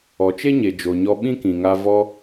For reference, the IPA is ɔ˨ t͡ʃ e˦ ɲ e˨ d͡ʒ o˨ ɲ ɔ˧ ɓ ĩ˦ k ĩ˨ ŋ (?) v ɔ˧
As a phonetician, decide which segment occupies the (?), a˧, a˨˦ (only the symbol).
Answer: a˧